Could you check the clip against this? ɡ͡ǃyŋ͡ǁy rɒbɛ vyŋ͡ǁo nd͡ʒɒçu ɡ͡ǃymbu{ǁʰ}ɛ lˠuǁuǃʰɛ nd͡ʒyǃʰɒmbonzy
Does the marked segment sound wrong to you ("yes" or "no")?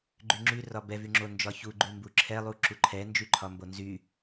no